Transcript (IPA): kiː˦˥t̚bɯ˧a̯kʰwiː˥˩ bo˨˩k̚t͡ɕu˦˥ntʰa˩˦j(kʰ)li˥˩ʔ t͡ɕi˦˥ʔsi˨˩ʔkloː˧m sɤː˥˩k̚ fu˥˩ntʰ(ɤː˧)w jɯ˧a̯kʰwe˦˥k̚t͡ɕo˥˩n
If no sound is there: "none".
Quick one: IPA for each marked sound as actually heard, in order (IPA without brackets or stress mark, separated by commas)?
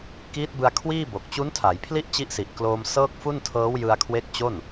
pʰ, ɤː˦˥